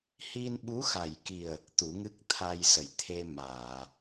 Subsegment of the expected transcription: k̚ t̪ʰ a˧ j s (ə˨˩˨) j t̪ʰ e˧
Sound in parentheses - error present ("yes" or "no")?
no